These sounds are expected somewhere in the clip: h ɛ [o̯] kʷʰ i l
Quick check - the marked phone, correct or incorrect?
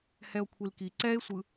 correct